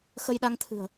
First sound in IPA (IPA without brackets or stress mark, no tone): x